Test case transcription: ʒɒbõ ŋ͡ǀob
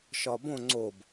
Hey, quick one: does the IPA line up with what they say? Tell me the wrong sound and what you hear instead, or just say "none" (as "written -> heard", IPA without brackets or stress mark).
ʒ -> ʃ